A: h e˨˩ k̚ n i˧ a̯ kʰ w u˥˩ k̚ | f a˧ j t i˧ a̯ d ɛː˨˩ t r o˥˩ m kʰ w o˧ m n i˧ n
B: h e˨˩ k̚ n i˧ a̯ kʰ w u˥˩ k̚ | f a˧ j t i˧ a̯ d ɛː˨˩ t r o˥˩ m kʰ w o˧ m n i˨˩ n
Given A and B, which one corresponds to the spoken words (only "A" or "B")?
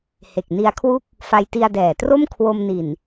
B